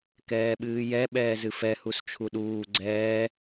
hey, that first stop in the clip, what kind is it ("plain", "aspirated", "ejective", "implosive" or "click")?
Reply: plain